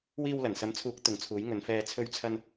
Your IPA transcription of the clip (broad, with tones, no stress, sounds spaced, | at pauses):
w iː˧ w l ɐ˨˩ n s ɐ˨˥ m t͡sʰ uː˨˥ k̚ t̪ ʊ˨˧ ŋ t͡sʰ uː˨˥ j ŋ ɵ˨˧ n f ɛː˧ t͡sʰ ɵ˥ ɥ t͡sʰ ɐ˥ n